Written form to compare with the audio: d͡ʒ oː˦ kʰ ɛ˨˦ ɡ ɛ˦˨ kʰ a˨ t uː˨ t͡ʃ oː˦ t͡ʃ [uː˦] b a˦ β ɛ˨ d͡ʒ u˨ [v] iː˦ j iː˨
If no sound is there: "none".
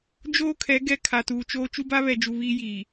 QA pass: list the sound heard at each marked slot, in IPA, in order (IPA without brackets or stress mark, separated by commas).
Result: u˦, β